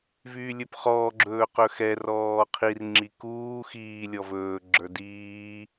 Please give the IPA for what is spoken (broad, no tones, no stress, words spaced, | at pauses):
vyːlʲɵpχɔːɡ͡ǁɵː qɵxɛrɔː qʰirŋ͡ǁi kuː xiː lʲɔvɵːɡ͡ǁə˞ diː